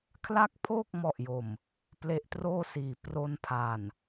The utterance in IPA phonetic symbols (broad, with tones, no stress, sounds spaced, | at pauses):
kʰ l a˦˥ k̚ pʰ oː˥˩ k̚ m ɔ˨˩ ʔ j o˨˩ m | p l e˦˥ ʔ t r oː˥˩ s iː˩˦ p r o˧ n pʰ a˨˩ n